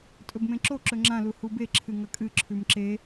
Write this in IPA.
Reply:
tʼɵbmẽǁo ǁɵŋ͡ǁã luhube ǁʰɨŋɐkʼɨ ǁʰʉmǁe

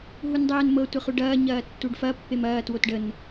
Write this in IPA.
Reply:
ɦundˤɛːnmɤ tʷəχuɖɐː ɲɐːtːuɖfɐ pːemɐː twotɖən

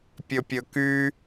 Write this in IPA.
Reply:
pʲɵpʲɵky

